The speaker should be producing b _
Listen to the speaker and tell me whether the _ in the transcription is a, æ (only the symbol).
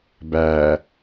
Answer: æ